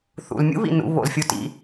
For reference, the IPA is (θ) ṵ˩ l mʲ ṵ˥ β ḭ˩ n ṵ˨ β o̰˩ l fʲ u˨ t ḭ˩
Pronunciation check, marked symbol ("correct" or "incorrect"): correct